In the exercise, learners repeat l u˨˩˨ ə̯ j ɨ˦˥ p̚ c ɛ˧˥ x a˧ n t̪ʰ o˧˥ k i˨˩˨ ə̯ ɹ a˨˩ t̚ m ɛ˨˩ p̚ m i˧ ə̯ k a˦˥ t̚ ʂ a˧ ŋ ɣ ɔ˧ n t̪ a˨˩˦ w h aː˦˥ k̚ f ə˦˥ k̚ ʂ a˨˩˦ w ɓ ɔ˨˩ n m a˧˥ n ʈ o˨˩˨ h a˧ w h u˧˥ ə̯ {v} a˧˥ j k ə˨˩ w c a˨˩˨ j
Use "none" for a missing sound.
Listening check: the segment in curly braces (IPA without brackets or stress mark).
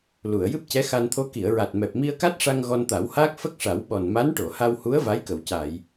v